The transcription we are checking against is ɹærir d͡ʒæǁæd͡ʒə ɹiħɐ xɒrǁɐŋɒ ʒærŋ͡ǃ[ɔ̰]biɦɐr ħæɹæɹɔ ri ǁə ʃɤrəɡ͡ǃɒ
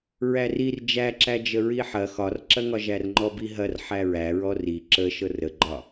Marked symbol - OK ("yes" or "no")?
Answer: no